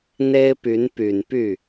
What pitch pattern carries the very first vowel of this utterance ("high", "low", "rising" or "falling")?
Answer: high